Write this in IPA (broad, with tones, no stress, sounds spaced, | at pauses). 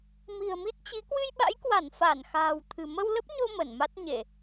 m i̤˨˩ ə̯ m i˦˥ t̚ t͡ɕ i˨˦ k w ɨ˧ j ɓ a̰˧˥ j k w a˧˩ n f a˧˩ n x a̤ː˨˩ w t̪ʰ ɨ̤˨˩ m ə˧ w l ə˦˥ p̚ ɲ o˧ m ə˧˩ n m a˦˥ t̚ ɲ e˧˩˨